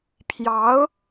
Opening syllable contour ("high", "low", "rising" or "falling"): rising